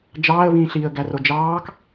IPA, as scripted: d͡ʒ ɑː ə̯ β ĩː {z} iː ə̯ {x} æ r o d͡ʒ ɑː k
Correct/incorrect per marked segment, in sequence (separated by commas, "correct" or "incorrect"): incorrect, incorrect